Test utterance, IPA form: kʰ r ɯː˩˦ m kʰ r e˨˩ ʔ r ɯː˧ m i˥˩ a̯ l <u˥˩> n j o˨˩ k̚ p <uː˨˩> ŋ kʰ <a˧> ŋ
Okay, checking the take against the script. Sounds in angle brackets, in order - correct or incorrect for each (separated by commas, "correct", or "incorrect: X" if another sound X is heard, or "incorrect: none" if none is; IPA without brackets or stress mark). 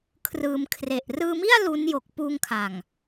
incorrect: u˦˥, incorrect: uː˧, incorrect: a˨˩